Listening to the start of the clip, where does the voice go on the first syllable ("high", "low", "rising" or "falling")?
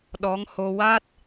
rising